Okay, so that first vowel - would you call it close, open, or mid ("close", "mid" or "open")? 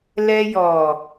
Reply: mid